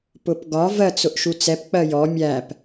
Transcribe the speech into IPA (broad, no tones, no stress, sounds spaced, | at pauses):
p ʊ p ɡ ɒ v ɜ t͡s ʊ ʔ ʃ u t͡s ɛ p k͡p ɜ j ɔ mʲ æ p